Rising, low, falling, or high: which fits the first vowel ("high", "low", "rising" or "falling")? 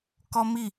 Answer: high